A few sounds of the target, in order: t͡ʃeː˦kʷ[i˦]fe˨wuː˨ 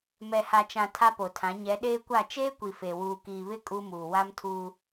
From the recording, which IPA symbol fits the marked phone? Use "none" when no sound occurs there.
i˨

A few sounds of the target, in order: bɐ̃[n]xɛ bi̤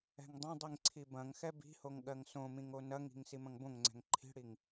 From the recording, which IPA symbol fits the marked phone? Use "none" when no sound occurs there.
ŋ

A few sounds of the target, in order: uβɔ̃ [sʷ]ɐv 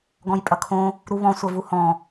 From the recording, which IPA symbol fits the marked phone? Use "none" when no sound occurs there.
sʷ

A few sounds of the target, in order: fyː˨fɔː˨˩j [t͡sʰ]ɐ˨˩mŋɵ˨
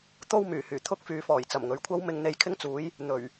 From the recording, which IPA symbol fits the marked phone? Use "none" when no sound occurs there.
t͡s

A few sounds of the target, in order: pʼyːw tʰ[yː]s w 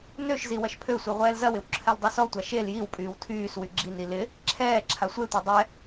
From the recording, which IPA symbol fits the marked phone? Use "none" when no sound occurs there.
yː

